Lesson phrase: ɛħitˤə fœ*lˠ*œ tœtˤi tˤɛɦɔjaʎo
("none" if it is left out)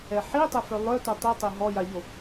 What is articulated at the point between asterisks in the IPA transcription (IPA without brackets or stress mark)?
lˠ